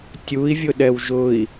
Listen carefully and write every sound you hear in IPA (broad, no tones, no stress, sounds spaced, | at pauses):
tʲ u i̯ vʲ ʊ ɗ ɛ w ʒ ʊ i̯